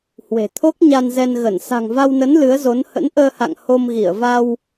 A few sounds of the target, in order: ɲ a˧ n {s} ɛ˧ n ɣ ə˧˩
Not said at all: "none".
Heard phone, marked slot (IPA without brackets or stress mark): z